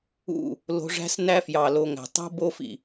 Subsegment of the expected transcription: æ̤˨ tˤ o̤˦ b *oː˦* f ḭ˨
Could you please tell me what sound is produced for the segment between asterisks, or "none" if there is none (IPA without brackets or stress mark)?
o˦